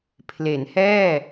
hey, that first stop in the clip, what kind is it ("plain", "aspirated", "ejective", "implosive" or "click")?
aspirated